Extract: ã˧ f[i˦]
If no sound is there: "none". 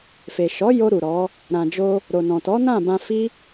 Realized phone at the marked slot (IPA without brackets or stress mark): i˦